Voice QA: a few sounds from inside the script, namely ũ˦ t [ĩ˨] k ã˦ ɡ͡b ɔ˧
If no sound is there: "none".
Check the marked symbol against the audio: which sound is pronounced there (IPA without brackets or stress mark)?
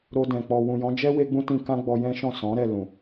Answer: ĩ˧